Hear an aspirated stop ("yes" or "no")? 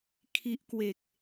yes